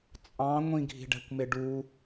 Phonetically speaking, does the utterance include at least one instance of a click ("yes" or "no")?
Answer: no